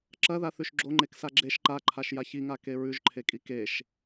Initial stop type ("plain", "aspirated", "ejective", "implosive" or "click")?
click